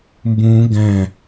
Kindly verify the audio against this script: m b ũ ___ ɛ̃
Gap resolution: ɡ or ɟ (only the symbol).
ɡ